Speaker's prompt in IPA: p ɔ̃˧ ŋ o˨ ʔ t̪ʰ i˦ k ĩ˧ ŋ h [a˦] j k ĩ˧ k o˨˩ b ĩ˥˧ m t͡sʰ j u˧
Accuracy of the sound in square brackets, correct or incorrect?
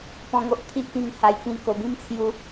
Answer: incorrect